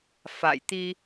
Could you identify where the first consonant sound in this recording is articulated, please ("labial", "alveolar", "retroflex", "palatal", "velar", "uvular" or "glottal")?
labial